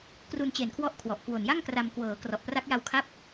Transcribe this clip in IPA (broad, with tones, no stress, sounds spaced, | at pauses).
k r u˧ n t͡ɕ e˨˩ n kʰ w ɔ˦˥ ʔ kʰ w ɔ˨˩ ʔ k w o˨˩ n j a˥˩ ŋ k r a˧ m k w ɤː˩˦ k r ɔ˨˩ ʔ p r a˦˥ k̚ j a˧ w kʰ a˥˩ p̚